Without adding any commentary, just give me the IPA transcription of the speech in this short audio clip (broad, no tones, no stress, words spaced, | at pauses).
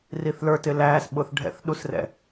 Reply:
riθlə˞ tɪlæːs ɓʊːθɖʱɛ̰θ ɗusrɛ̰